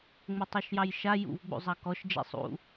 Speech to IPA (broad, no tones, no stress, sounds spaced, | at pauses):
ŋ͡m ʊ tˤ o ʃ j ɑ j ʃ a j ṵ v ɡ͡b ṵ zˤ ɑ k ɔ ʃ d͡ʒ ḛ sˤ ṵ